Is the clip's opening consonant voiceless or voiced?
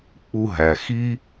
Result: voiceless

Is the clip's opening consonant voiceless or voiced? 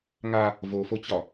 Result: voiced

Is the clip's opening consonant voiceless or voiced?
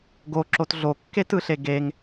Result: voiced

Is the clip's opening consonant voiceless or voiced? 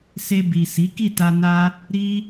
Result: voiceless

